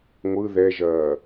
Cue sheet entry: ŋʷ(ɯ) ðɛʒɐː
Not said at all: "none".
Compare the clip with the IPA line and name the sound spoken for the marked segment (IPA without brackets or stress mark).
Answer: ɯ